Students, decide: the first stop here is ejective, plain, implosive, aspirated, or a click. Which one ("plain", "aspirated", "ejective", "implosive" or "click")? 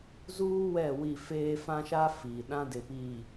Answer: implosive